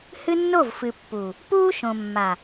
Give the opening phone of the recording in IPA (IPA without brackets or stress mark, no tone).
h